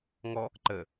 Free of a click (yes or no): no